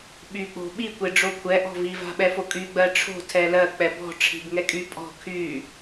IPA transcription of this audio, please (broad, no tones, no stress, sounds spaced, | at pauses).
ɓ y k͡p o̤ ɓ i kʷ e ɖ͡ʐ o kʷʰ ɛ ʔ ɔ̤ v i v a̤ ɓ ɛ f o kʼ y ɡ͡b ɜ ʈ͡ʂʰ o̤ tʰ ɛ l ɜ k͡p ɛ b ɔ̤ ʈ͡ʂʰ i̤ b ŋ ɛ kʼ y pʼ ɔ̤ kʰ y